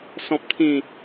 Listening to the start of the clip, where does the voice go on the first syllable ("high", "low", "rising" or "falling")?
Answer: low